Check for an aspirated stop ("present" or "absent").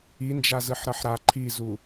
present